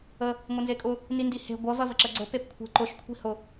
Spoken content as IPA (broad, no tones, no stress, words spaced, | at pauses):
ə | ŋʷənzekʼʊ | nindihe̤ ɡʷɐv ɐvəǁəɡ͡ǀʊ pepkʷʰe̤ǃʊʃ kʷʰi̤hʊ